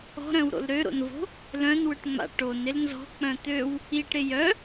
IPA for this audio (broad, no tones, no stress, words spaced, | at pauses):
ɔ̤ɾœ̃wɾo̰l ɾøɾo̰nvo̤ | lœ̃nwʏʈŋ͡ma̰ ʈonɪl nzɔ̤k͡pœ̃ t̪øw | iʈɾɪ jœ